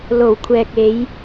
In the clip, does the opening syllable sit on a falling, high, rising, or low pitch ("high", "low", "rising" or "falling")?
low